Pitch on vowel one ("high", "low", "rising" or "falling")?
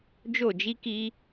falling